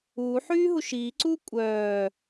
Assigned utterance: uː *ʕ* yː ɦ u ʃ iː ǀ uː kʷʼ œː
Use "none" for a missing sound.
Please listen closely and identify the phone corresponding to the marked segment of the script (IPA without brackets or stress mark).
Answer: ħ